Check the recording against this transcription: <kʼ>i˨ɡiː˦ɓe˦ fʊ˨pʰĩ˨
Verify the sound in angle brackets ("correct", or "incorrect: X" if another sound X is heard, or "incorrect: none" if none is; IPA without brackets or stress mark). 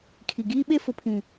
incorrect: kʰ